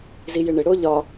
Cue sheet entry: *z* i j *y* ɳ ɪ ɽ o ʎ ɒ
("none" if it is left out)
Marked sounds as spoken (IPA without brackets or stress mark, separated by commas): z, ɪ